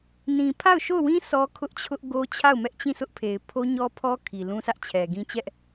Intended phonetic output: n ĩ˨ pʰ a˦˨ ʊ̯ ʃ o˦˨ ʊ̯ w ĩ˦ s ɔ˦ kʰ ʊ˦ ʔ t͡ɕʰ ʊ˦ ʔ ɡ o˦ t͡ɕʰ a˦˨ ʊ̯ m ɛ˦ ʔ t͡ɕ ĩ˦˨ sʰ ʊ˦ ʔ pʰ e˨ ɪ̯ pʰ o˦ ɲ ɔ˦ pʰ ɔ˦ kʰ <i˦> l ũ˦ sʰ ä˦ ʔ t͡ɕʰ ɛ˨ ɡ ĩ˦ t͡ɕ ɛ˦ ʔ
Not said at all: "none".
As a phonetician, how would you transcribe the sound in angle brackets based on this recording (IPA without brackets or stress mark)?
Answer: i˨